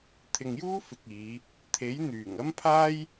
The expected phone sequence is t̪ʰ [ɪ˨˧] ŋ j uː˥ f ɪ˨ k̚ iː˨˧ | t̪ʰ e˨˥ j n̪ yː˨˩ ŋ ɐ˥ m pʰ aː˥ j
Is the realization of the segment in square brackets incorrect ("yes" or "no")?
yes